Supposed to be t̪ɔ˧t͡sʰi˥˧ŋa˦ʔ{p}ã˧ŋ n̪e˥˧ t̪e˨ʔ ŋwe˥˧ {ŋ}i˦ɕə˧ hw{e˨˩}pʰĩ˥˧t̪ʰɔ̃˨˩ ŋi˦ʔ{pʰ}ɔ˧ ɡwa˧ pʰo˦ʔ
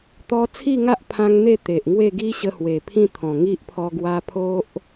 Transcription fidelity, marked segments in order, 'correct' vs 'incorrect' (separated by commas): incorrect, incorrect, correct, correct